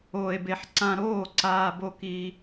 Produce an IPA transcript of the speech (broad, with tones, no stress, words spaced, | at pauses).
oː˧e̯be˧ħ ǀã˧ɾoː˥˩ ǀaː˧bo˧ ki˧